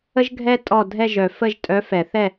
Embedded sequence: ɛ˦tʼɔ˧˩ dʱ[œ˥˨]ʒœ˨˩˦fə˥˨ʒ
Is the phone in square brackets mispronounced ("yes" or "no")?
yes